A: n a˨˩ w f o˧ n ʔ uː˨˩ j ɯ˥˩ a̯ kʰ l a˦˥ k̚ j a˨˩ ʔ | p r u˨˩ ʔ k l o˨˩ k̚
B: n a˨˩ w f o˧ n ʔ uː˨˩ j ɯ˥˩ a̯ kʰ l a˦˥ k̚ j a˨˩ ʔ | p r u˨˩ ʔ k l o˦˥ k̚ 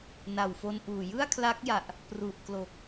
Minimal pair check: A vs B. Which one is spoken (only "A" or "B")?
A